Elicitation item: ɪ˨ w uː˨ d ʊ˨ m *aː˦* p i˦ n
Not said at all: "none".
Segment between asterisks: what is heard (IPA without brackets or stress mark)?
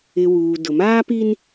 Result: aː˦